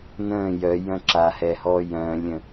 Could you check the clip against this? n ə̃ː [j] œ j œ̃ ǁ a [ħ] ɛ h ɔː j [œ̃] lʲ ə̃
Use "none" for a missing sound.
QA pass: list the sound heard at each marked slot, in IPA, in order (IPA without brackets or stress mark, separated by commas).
j, h, œ̃ː